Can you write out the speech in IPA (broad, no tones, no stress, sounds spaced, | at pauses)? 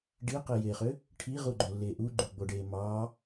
ɖ i q i j eː χ ø | ʈʰ i ʁ u ɡ͡ǃ o lː eː ʔ u ɡ͡ǃ u ɡ͡b o ɖ eː m ɑː